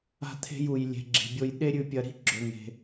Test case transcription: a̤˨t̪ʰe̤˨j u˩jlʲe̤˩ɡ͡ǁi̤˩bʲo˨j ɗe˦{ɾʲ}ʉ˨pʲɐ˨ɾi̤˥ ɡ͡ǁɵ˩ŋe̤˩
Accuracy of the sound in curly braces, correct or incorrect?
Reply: correct